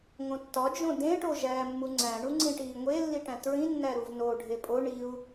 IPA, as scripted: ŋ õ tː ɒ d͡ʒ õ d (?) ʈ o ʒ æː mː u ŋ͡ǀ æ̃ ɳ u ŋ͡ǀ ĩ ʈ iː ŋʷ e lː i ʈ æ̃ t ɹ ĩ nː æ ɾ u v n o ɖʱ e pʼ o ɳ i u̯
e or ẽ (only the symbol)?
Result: ẽ